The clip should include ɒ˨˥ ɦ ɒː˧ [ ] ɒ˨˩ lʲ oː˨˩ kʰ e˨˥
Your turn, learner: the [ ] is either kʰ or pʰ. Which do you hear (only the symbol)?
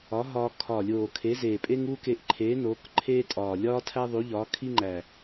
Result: kʰ